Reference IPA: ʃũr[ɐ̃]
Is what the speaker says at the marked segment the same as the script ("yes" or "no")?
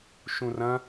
yes